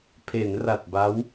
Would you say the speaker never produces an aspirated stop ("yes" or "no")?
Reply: no